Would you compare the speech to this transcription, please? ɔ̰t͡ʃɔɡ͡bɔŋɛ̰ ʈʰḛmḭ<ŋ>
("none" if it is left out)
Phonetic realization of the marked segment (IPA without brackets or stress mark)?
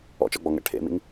ŋ